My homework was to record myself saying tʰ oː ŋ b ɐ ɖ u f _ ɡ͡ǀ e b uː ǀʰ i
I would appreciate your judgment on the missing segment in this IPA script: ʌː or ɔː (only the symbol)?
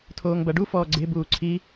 ɔː